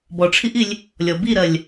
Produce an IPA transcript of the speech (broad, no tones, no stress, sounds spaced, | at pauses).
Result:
b ɔ ʈ͡ʂʰ i ʔ i lʲ | lʲ ɔ b i ɾ ɜ lʲ